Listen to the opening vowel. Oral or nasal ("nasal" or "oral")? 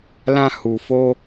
nasal